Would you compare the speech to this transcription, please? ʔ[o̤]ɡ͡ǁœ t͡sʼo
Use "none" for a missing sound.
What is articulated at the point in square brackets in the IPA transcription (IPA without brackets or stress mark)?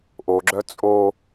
o